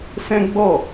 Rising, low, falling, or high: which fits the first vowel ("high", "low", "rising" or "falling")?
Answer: high